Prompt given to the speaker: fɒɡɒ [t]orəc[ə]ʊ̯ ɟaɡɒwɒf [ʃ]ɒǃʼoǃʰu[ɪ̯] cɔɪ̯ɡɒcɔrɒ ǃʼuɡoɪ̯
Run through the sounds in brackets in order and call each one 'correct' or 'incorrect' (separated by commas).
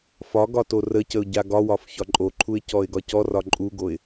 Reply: correct, correct, incorrect, correct